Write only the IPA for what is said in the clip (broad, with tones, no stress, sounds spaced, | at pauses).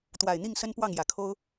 t̪ w a˨˩ ɪ̯ n̪ i˥˨ ŋ s ə˦ n p w ɑ˥˨ ŋ j ä˨˩ kʰ o˦ ʊ̯